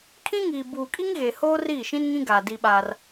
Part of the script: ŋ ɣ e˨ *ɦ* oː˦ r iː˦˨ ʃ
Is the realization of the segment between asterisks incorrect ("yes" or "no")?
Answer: yes